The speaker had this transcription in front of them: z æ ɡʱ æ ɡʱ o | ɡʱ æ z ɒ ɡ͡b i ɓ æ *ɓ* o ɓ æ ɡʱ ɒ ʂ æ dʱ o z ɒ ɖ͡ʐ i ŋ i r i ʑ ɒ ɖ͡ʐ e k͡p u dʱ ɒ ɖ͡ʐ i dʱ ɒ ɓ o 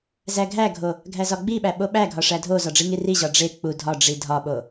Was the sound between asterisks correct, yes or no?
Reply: yes